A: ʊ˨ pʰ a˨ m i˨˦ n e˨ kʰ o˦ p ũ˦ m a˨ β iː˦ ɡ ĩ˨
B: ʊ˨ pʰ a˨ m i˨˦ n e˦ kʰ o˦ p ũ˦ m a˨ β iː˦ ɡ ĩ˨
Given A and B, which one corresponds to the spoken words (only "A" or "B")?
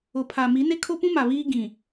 B